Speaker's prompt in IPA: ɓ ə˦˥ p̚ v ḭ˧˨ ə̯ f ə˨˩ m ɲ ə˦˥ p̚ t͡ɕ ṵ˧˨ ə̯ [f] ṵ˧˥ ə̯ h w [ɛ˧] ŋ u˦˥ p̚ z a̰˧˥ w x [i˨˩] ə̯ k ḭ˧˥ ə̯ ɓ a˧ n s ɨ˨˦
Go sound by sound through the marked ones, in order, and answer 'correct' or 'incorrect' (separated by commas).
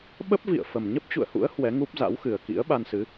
incorrect, incorrect, incorrect